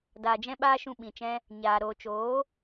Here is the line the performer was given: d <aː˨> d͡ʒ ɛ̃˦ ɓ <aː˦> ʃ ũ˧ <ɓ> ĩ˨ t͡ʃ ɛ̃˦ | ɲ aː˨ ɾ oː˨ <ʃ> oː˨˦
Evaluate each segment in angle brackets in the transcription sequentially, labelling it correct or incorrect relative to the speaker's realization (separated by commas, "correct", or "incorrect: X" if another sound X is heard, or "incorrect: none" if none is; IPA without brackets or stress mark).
correct, correct, correct, incorrect: t͡ʃ